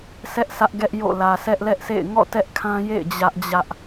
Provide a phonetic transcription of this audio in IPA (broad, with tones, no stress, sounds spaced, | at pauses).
sʰ ɛ˦ ʔ sʰ ä˦ ʔ ɡ ɛ˦ ʔ j o̰˦˨ l ä˨ sʰ ɛ˦ ʔ l ɛ˦ ʔ s ḛ˦˨ ɪ̯ ŋ ɔ̰˦˨ t ɛ˦ ʔ kʰ ã˦ j ḛ˦˨ ɪ̯ d͡ʑ ä˦ ʔ d͡ʑ ä˦ ʔ